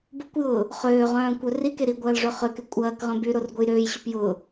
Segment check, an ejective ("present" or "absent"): present